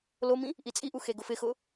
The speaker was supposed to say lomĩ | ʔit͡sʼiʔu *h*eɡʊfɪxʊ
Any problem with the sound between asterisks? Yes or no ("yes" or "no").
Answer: yes